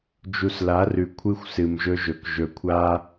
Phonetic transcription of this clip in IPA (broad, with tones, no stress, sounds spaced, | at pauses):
d͡ʒ u˨ s l a˨˦ r ʉ˨ kʷʰ ɨ˦ xʷ s ɨ˨ m ʒ ɵ˦ ʒ ɵ˨ k ʒ ɵ˨ kʷʰ a˦